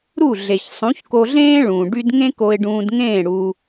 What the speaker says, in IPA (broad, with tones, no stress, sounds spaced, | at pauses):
ɾ u˦˨ ɮ e˨ ç sˤ ũ˨˦ ç k o˧ ɮ ẽː˦ ɭ ũ˨ ɖ y˦ d ŋ ẽ˦ k o˧ ɪ̯ ɖ ũː˧ d ŋ ẽː˦˨ ɽ u˧